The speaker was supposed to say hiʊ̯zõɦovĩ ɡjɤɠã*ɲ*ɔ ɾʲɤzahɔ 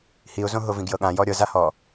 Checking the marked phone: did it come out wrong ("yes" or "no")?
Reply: yes